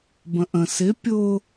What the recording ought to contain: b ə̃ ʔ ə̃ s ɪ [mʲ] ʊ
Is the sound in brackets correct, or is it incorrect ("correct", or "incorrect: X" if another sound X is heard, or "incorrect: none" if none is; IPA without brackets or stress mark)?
incorrect: pʲ